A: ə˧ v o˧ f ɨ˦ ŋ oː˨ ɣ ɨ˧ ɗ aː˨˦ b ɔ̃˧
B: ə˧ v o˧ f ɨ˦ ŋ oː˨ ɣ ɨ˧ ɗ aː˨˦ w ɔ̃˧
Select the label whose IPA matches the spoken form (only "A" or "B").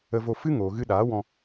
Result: B